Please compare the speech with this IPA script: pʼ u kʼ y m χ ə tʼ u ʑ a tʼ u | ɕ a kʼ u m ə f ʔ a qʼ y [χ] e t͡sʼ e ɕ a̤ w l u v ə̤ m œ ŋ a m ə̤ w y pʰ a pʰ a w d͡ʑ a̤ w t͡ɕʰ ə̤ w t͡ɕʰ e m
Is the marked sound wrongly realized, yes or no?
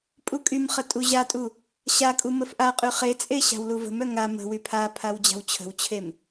no